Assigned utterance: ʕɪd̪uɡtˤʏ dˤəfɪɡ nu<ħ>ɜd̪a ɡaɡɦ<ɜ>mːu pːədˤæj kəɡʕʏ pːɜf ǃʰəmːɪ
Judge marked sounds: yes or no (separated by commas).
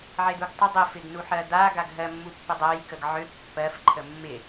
yes, yes